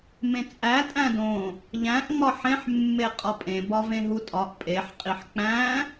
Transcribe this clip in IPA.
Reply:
mẽt͡sʼæ tʼæ̃dõ | ʎæ̃ʔ ŋ͡mɒħẽħ mːeqʼɒpʼẽ bɒvẽɦutʼɒʔ pʼeħ qʼiħk͡pæ̃

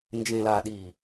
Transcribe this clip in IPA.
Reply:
nd͡ʒẽ˨la˨ ɗi˨

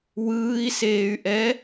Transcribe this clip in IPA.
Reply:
wɯːi̯seːy̯ʔɛ

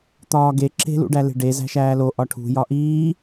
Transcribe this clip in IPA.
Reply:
t̪ɒːɡe ǁe̤ lṵɖæle̤ɖe zæ̤ʃæːlo ʔɒʈʰṳ jɒʔiː

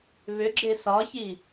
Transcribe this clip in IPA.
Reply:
βʏɡ͡ǁe sɒçi

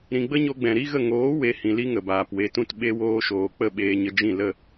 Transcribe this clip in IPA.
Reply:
ɾĩ˨ɡ͡bə˦ɲo˧ɡ͡bɛ̃˨ ɾi˦ɣə˦˨ ŋoː˨˦ we˨˦hĩ˨li˦ ŋə˨baː˨pwe˧tũ˦t ɓe˧woː˧ʃoː˨k͡pə˦˨ ɓeː˧ɲə˧d͡ʒĩ˦˨ lə˦˨

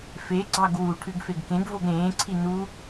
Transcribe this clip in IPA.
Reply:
feɡ͡ǀɑɡ wu ʈʰʉɡfeɡkẽɡvoɡ ɾẽːǀʰi nu

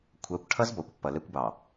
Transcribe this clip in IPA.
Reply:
kʷʰʌː˨˦kʷʈʰʌ˦z bɔ˨kʷpːʌ˨ lɛ˦kʷbɑ˨

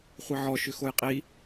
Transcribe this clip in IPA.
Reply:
χʷiʕɔʃʏ xojqʼi

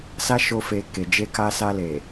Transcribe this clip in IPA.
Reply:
sa˦ʃo˧ fe˧ke˨ d͡ʒe˧ka˧ sa˧ le˨

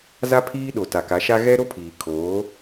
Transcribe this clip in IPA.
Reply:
za˦ pʰiː˦ ɗo˨ ta˨ka˨˦ʃa˦ ɣɛ˦ɾo˦pʰiː˨ kʰoː˨˦

